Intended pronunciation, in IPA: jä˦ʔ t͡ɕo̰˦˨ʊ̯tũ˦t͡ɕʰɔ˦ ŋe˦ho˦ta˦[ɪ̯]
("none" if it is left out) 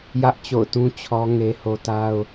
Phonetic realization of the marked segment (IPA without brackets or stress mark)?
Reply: ʊ̯